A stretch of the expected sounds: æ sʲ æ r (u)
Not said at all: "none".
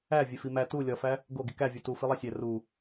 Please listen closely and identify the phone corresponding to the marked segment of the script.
u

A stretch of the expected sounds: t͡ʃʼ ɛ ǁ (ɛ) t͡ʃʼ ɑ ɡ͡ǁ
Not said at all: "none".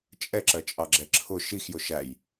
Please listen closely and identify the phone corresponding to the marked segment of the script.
ɜ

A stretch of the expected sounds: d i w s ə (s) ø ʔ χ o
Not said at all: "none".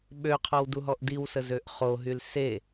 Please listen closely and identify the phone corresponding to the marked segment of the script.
z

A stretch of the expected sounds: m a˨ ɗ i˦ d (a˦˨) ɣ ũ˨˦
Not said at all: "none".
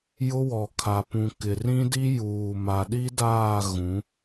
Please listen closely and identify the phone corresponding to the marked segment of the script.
aː˦˨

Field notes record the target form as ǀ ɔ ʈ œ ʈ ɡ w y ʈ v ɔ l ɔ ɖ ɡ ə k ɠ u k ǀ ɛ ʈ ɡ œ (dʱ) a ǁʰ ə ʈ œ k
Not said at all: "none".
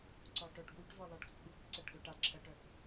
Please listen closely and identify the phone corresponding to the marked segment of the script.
ʈ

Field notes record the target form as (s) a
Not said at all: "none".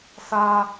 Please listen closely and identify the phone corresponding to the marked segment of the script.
s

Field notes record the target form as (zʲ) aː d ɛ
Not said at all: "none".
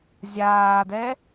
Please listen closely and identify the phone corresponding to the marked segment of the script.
zʲ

